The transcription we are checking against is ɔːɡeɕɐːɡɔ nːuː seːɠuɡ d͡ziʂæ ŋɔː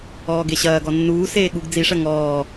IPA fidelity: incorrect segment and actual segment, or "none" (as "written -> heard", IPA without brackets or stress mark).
æ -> ɐ